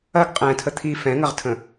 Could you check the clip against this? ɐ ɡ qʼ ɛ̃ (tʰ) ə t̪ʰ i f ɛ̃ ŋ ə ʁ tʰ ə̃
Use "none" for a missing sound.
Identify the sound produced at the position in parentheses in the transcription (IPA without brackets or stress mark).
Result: tʰ